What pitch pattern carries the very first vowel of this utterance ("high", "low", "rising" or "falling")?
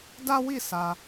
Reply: high